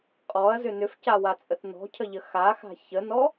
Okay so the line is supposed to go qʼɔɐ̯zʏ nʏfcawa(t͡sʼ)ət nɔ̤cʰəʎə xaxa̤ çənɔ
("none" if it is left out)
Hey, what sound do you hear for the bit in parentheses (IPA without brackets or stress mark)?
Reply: t͡sʼ